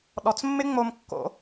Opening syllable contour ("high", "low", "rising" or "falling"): low